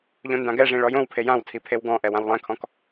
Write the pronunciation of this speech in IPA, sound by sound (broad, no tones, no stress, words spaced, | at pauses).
ʎõndãɡɛʐĩ ɭɔjõwpʰe jãwtʰi pʰewɡɔ̃ʔɛw ãwlˠɛ̃kʰɔ̃k